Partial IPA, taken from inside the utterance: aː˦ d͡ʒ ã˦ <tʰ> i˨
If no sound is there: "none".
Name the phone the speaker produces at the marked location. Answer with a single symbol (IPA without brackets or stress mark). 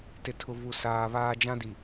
d